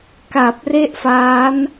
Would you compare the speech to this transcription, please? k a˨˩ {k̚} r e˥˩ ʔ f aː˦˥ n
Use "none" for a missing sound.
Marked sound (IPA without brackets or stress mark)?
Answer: p̚